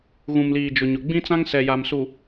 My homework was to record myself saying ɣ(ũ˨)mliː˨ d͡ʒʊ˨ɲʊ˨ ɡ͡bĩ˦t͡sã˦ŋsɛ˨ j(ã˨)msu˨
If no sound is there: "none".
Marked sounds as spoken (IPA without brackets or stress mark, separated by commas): ũ˨, a˨